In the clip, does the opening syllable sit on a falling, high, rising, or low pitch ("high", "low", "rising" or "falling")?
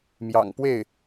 low